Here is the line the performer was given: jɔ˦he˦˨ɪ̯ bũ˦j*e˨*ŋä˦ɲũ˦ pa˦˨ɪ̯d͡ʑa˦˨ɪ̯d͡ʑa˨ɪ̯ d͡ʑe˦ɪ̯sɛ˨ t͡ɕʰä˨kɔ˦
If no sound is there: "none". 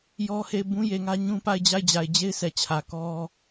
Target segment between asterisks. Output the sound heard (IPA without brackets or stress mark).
e˨